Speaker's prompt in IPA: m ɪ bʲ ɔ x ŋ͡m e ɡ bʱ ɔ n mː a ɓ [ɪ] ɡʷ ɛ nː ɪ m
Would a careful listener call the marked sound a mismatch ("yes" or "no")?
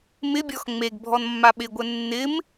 no